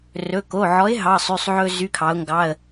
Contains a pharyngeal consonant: yes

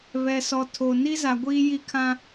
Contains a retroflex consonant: no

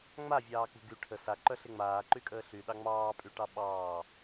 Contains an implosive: yes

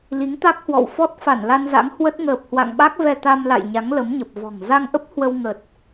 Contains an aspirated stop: no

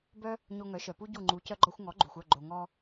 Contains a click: yes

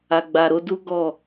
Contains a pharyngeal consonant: no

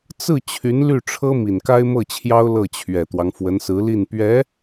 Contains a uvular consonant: no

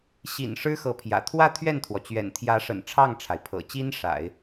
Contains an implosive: no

